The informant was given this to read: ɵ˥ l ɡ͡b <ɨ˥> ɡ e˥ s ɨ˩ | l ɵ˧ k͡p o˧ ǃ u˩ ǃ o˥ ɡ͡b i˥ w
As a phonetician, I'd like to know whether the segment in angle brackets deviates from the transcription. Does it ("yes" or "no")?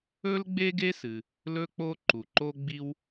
yes